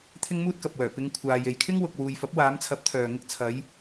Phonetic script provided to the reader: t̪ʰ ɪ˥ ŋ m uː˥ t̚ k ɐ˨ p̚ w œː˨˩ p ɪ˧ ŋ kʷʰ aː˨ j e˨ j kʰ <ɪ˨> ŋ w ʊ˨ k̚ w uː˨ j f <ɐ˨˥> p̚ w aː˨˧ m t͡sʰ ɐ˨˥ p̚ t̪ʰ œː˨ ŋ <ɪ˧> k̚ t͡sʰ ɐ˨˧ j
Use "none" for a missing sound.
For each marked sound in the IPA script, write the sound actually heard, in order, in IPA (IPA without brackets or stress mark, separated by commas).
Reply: ɪ˥, ɐ˨˥, ɪ˧